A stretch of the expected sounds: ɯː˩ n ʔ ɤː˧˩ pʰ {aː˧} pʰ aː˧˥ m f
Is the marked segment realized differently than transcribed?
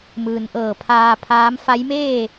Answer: no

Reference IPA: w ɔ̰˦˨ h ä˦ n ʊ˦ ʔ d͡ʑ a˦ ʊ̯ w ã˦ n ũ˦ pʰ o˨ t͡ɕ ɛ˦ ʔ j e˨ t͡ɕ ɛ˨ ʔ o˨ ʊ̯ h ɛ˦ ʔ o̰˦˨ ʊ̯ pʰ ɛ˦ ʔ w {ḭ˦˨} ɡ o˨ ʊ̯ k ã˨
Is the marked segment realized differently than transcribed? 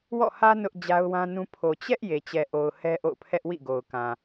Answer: no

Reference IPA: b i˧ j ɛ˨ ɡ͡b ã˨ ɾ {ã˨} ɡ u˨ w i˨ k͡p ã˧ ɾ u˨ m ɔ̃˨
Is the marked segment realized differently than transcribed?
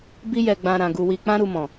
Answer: no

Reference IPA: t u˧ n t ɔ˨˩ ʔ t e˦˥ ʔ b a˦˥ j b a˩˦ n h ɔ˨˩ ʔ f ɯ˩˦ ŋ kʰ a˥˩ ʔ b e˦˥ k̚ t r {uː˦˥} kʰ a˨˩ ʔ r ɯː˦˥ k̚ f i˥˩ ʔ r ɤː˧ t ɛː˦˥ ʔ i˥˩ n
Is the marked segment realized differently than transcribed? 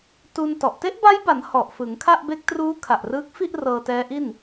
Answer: no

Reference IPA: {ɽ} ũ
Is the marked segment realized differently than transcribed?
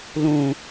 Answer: yes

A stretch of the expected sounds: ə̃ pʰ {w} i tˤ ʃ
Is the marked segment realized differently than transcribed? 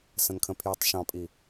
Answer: yes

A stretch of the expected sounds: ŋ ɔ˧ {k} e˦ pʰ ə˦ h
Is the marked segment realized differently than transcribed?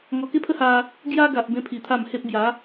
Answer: no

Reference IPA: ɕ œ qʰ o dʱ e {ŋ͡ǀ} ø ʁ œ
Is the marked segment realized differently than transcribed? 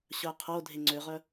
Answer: no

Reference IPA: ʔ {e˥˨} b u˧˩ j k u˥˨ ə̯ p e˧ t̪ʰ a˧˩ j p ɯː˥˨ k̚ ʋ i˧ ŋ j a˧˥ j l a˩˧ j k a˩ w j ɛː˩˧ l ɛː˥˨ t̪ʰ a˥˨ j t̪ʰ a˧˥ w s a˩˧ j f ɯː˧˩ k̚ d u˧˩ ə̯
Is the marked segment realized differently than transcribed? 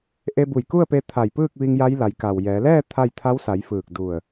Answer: yes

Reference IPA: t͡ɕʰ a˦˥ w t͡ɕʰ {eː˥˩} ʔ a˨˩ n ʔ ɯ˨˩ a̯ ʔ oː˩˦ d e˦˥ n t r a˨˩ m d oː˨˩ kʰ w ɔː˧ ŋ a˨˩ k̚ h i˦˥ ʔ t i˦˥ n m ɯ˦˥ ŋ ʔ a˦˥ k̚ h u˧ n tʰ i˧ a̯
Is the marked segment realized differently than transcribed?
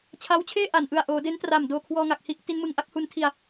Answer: no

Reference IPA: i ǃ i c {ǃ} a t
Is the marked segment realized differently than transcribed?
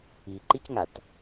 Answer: yes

